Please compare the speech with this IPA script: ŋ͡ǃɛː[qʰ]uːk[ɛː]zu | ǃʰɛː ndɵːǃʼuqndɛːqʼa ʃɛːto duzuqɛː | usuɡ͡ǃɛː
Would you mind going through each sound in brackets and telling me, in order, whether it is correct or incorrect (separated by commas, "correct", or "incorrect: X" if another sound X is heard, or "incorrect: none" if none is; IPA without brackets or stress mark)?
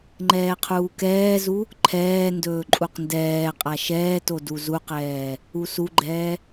correct, correct